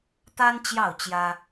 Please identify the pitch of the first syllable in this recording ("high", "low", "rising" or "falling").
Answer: high